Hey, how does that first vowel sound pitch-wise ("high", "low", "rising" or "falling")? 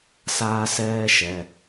high